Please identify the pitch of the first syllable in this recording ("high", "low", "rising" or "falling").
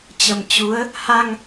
low